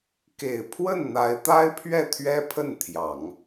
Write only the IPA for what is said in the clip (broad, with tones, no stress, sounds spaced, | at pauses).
k e˨˩ ɪ̯ pʰ w ə˥˩ n n̪ a˧˥ ɪ̯ t̪ a˥ ɪ̯ pʰ ɥ ɛ˥˩ t̪ʰ ɥ ɛ˥ pʰ ə˥˩ n t̪ʰ j ɑ˨˩˦ ŋ